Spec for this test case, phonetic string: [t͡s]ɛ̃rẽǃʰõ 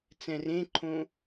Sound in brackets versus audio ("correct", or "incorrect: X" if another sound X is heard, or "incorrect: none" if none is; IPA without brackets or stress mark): correct